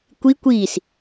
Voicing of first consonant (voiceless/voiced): voiceless